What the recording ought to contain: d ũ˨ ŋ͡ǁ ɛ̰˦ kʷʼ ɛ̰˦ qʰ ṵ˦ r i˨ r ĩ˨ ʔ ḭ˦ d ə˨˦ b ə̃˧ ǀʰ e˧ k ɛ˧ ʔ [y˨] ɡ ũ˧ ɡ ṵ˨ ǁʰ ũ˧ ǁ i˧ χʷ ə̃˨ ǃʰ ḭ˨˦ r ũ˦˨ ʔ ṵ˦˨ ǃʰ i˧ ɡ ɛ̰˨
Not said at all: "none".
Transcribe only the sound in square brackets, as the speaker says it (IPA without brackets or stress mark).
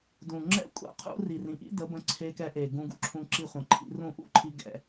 e˨